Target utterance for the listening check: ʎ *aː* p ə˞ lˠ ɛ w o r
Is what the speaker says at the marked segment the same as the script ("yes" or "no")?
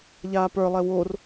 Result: yes